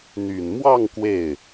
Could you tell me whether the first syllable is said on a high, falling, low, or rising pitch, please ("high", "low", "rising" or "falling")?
low